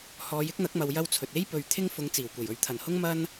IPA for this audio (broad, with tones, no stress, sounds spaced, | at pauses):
h ɔː˨˧ j ɪ˥ k̚ n̪ ɐ˨˥ k̚ m ɐ˨ w j ɐ˥ w t͡sʰ ɵ˨ t̚ e˥ j p ɵ˨ ɥ t̪ʰ ɪ˥ ŋ f ʊ˨˧ ŋ t͡s iː˨˩ w kʷ e˨˩ j ɵ˨ ɥ t̪ʰ ɐ˨˩ n h ʊ˥ ŋ m ɐ˥ n